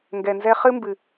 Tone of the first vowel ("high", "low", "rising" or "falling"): low